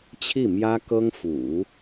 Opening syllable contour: falling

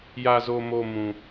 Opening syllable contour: low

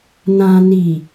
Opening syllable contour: low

